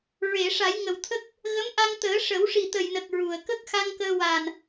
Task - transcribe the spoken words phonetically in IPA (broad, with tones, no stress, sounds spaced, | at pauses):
ɹ e˨˩˨ ʂ a˨˩˦ j ŋ ə˨˩ w t̪ʰ ə˦˥ k̚ | ɣ ə˧˥ m ʔ a˧ ŋ t̪ əː˨˩˦ ʂ ə˨˩˦ w ʂ i˨˩ t̪ ə˨˩ j n ə˨˩ k̚ ɹ u˨˩ ə̯ k ə˦˥ k̚ x a˧ ŋ k əː˧ w a˨˩ n